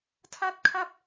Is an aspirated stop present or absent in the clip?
present